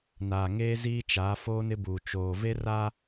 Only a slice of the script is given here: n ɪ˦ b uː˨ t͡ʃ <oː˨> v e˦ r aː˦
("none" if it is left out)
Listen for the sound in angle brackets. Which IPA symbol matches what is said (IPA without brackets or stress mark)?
oː˨